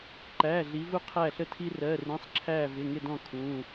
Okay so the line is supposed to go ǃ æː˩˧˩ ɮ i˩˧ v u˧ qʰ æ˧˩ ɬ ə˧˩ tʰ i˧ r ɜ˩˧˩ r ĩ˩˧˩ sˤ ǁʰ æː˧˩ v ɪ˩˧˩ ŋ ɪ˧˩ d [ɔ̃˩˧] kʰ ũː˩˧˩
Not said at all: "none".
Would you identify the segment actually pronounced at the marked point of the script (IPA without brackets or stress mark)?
ɔ̃˧˩